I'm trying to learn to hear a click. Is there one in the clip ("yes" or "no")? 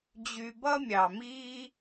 no